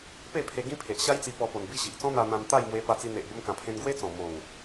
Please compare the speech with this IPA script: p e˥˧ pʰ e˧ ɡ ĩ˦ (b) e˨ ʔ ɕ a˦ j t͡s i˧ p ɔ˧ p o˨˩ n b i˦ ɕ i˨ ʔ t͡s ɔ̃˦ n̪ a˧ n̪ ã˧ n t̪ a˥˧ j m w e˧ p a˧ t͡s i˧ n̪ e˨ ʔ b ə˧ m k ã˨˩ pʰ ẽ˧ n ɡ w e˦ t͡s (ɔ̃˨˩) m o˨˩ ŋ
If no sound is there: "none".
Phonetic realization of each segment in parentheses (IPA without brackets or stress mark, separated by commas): pʰ, ɔ̃˨˩